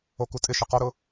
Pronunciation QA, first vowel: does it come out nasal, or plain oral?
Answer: oral